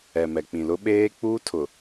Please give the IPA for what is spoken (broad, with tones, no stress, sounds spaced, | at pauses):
ɛ˨ m ɛ˨ k͡p ĩ˨ l ʊ˦ ɓ eː˦ k͡p uː˦ tʰ ʊ˨